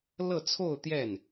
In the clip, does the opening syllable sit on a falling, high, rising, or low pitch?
falling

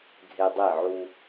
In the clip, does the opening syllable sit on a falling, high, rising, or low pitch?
low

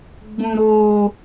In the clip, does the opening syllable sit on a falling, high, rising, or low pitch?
high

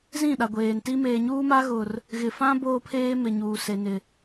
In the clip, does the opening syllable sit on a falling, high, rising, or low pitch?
falling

